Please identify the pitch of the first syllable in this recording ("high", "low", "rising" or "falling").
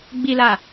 low